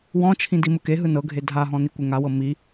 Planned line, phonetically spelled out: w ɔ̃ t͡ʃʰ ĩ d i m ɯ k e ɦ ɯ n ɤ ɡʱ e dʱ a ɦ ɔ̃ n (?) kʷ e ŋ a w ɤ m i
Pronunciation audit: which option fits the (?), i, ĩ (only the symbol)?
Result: i